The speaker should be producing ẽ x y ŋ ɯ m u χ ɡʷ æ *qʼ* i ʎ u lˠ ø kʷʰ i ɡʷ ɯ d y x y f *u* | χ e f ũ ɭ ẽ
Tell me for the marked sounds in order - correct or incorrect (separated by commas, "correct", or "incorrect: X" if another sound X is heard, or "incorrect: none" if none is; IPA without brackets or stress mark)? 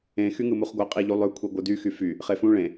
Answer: correct, incorrect: y